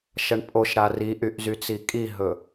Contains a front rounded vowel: yes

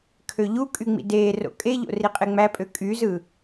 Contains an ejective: yes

